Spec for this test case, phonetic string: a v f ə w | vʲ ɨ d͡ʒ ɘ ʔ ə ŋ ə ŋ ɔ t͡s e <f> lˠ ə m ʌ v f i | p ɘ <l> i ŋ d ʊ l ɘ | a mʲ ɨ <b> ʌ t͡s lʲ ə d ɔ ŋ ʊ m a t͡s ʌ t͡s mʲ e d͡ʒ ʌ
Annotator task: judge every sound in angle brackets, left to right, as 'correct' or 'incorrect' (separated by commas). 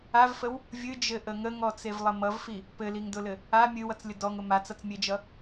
incorrect, correct, incorrect